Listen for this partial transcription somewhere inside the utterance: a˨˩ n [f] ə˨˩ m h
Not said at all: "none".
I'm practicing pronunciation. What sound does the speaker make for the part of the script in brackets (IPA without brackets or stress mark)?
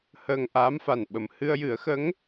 ɓ